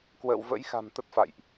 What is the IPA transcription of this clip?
kwə̰ː˧˨wvə̰˧˥jxa̤˨˩m t̪ə˦˥t̚fa̰˧˨jʔ

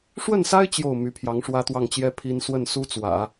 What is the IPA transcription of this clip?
ʂwə˥˩nsa˥ɪ̯ t͡ɕjo˥˩ʊ̯ my˧˥pʰjɑ˧˥ŋʂwä˥ t̪wɑ˥˩ŋt͡ɕjɛ˥ pʰi˥n swə˥˩nsu˥t͡swä̰˨˩˦

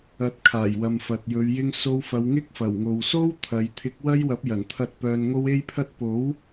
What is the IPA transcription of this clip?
ɐ˨˥t̚ kʰaː˨˩jwɐ˨mfɐ˨t̚jɵ˨˧ɥ jɪ˧ŋso˧wfɐ˨˧w ŋɪ˥k̚fɐ˨˩wŋo˨w so˥w t̪ʰɐ˨˧j t̪ʰɪ˨˥k̚wɐ˥jwɐ˨˥p̚ jɐ˨˩nt̪ʰɐ˧t̚ pœː˧nŋo˥w e˥jpʰɐ˥t̚ po˨˥w

